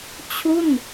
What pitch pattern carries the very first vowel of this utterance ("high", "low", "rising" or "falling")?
falling